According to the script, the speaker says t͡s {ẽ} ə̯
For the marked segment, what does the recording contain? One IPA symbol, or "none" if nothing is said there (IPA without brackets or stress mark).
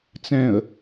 ɛ̃